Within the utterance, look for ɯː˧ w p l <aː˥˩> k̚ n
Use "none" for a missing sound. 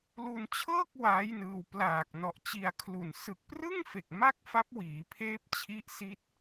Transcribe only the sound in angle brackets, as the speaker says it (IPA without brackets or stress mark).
aː˨˩